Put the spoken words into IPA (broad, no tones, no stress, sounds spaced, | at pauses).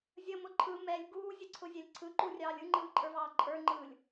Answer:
zʲ ə m ʊ ǃʰ ɯ m ɛ lʲ ɡ uː zʲ ə ǀʰ ʊ zʲ ɛ lʲ ǀʰ ɯ ǃ u rʲ ɑː lʲ ɯ ŋ͡ǃ ɯː ǃʼ ə˞ v ɑː ǃʼ ə˞ ŋ͡ǃ ɯː lʲ